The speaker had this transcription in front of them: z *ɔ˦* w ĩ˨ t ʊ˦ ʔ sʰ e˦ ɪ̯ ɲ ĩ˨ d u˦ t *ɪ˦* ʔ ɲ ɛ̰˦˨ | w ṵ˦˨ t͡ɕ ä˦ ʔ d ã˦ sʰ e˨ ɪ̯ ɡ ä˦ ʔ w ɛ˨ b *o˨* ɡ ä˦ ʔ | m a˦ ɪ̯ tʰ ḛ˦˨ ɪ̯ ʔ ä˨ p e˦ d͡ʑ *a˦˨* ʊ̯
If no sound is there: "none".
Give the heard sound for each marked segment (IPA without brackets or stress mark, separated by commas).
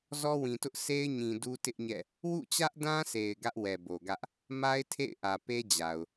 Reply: ɔ˦, ɪ˦, o˨, a˨